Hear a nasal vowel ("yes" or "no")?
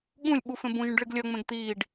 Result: yes